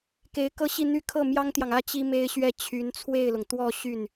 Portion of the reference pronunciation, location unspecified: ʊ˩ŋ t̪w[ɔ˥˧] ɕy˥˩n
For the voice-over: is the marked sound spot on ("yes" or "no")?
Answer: yes